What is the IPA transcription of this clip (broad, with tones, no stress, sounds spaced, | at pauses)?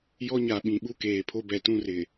j ɔ˦ ɲ a˨ ɓ ĩ˨ ɓ u˦ k eː˨ pʰ o˦ b ɛ˨ t ũ˦ r ɪ˨